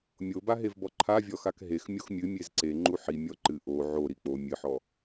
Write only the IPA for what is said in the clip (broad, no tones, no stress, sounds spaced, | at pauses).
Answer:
mʲ o b a ɦ e v b ɔ ǃʰ a vʲ ɔ x a k ɦ e x mʲ o x mʲ ɨ mʲ e z ǀ e ŋ͡ǃ u ħ i mʲ ɔ ǃ ɨ ʔ o ʕ o ɾ i k͡p o mʲ ɨ ħ ɔ